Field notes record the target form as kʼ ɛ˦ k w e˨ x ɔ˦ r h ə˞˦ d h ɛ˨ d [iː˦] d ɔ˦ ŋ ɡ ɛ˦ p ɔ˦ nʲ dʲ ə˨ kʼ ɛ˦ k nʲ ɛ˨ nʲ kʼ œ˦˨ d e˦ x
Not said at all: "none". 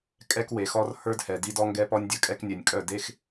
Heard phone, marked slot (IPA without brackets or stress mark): i˦